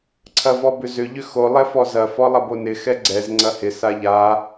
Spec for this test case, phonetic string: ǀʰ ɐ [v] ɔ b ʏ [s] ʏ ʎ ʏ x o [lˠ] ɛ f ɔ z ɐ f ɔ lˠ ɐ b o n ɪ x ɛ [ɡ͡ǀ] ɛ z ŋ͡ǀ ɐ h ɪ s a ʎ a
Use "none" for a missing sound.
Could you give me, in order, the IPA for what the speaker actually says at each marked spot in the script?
v, z, lˠ, ɡ͡ǀ

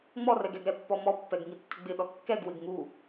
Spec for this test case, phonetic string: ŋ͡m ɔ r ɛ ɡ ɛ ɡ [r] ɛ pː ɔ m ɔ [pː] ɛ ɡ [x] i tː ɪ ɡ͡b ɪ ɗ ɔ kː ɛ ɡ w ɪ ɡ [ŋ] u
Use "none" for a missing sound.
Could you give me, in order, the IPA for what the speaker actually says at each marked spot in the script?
ɾ, pː, ŋ, ŋ

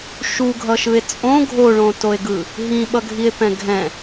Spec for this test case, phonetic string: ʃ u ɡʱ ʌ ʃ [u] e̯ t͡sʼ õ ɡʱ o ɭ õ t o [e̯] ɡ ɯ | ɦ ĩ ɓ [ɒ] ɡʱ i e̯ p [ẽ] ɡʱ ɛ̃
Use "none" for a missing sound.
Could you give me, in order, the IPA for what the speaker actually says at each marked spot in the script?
ɯ, e̯, ʌ, ɛ̃

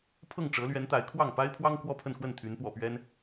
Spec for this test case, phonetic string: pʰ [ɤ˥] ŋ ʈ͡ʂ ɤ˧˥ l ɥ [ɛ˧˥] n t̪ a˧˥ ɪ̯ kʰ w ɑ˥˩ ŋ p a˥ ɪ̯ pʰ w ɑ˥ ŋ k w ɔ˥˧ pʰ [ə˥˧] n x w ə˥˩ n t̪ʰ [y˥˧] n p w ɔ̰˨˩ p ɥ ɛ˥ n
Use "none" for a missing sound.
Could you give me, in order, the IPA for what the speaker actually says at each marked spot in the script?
ɤ˥˩, ɛ˧˥, ə˥˧, y˧˥

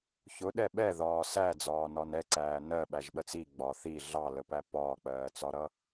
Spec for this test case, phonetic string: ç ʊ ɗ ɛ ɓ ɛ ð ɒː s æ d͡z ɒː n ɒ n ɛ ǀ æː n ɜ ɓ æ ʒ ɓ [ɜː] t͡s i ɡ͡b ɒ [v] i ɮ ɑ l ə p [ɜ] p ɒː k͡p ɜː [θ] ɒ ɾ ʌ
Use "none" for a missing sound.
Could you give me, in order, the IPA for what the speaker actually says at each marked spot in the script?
ɜ, θ, æ, t͡s

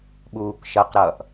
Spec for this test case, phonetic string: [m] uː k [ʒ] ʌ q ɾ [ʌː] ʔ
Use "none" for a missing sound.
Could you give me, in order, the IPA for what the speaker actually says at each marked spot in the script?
ɓ, ʃ, ʌː

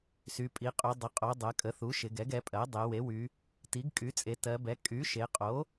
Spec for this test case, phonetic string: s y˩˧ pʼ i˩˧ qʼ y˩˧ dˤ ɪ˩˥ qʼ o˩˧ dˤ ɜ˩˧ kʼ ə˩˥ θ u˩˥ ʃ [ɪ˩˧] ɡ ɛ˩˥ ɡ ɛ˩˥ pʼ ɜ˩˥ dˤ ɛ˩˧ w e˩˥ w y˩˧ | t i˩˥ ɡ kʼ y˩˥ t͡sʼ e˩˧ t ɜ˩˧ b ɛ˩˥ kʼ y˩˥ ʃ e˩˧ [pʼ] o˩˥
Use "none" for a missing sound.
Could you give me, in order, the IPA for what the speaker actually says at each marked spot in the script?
ɪ˩˧, qʼ

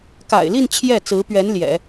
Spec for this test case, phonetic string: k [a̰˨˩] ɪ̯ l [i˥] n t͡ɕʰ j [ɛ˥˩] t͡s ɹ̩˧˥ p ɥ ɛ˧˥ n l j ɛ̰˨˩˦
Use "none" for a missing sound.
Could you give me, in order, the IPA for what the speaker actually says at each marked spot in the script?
a̰˨˩, i˥˧, ɛ˥˩

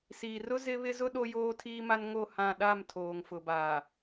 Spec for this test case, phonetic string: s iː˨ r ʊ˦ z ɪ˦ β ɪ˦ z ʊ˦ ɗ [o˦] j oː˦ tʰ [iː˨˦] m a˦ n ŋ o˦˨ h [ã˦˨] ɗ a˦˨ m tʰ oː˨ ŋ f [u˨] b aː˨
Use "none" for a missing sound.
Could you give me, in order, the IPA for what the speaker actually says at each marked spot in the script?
o˦, iː˦, ã˦˨, ʊ˨

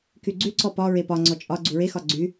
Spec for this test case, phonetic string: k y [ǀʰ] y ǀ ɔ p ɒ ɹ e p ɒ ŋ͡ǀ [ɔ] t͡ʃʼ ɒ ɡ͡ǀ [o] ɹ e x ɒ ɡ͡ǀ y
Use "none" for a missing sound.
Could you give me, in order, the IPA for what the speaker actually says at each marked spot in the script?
ɡ͡ǀ, ɔ, u

